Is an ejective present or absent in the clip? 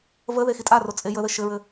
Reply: present